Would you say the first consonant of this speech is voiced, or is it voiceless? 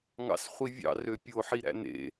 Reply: voiced